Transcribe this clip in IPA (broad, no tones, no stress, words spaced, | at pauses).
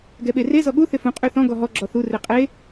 ɡɛɓere zɔɠu θɪfũ qʼyθɔ̃ ɡɔɦɔ ɡ͡ǁɔθu reqʼe